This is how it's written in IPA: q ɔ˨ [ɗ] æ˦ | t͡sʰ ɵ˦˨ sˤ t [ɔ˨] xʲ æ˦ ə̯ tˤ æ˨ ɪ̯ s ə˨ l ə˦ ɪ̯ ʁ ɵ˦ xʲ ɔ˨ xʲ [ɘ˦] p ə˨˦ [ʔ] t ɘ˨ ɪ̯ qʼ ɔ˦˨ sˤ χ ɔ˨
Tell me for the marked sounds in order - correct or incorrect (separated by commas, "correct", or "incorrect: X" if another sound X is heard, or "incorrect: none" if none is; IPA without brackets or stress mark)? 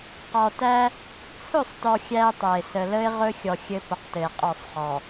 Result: incorrect: t, correct, correct, incorrect: q